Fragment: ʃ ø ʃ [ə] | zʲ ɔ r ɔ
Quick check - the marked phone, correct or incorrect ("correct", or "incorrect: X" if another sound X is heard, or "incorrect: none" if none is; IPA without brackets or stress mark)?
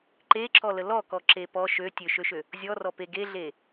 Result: incorrect: ø